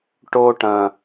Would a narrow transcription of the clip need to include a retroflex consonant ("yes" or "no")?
yes